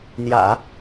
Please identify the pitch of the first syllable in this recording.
low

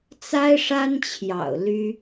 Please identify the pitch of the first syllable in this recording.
high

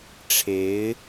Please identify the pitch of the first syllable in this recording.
rising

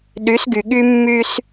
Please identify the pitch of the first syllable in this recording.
rising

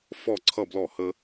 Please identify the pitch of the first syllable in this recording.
falling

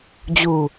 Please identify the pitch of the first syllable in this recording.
low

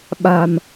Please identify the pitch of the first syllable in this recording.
low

